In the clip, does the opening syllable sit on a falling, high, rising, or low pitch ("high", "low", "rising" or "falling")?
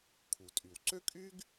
low